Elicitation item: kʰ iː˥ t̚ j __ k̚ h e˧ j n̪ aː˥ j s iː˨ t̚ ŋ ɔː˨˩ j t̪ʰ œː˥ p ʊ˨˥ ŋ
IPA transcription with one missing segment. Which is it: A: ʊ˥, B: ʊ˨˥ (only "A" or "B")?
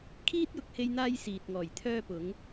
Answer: B